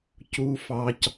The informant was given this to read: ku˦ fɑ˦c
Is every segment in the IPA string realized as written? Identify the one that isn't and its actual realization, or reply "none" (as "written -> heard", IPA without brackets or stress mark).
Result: k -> c